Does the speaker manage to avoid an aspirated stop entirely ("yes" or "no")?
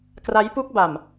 yes